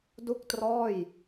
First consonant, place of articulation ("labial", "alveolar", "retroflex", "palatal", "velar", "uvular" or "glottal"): alveolar